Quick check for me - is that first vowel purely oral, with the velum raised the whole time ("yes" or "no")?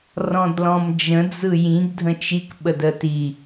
no